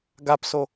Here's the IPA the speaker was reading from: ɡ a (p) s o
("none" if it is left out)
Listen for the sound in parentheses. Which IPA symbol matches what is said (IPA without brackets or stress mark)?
p